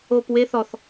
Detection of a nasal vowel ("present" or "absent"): absent